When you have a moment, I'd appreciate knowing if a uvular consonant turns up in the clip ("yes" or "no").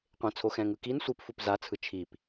yes